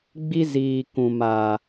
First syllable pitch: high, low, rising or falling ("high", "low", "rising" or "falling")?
high